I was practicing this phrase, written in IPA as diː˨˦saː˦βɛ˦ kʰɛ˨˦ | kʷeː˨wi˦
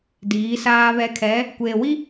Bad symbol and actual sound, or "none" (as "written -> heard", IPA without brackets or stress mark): none